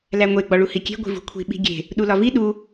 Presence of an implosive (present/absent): present